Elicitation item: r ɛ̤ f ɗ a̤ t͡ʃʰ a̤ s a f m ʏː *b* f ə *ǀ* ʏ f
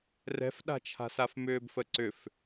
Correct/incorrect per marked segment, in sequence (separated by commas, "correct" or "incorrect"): correct, correct